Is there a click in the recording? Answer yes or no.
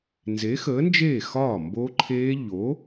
yes